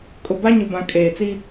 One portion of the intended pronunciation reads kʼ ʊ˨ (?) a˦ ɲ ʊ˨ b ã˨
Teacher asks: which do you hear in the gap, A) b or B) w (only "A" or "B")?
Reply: A